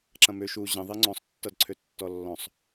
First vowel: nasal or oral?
nasal